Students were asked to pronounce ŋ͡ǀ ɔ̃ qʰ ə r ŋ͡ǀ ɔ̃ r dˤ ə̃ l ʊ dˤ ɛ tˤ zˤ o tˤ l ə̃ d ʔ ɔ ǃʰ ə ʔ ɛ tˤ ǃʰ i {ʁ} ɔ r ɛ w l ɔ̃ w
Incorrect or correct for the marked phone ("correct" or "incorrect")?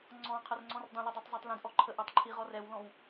correct